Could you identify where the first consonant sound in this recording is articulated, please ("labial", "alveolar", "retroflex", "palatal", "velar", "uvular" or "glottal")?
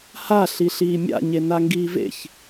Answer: glottal